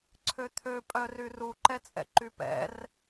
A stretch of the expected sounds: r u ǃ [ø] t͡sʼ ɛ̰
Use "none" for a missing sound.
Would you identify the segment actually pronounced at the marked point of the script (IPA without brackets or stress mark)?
ɛ